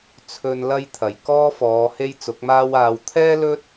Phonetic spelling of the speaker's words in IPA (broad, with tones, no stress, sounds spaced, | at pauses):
t͡sʰ ɵ˧ n l ɐ˥ j t̪ʰ ɐ˨˩ j k ɔː˥ f ɔː˨˧ h e˥ j t͡s ʊ˨˥ k̚ m aː˥ w aː˧ w t̪ʰ ɛː˥ l ɵ˥ t̚